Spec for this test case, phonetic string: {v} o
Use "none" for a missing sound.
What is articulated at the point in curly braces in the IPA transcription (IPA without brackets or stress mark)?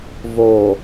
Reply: v